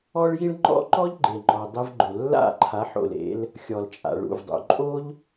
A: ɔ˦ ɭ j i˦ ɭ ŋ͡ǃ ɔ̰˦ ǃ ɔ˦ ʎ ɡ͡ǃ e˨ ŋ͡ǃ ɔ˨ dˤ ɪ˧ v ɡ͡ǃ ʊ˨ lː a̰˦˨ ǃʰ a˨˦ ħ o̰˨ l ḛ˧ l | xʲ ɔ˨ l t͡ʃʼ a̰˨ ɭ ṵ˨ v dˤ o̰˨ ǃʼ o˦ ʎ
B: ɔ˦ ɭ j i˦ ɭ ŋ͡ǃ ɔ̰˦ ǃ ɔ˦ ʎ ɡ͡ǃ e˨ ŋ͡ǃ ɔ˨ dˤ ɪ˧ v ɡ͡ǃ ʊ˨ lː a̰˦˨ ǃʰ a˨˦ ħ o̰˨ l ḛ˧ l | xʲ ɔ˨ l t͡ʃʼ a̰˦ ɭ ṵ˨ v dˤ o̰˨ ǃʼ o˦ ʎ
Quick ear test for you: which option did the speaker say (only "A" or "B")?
A